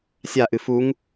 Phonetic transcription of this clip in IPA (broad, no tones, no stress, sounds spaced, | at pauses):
sʲ a ʔ ɨ f u ŋ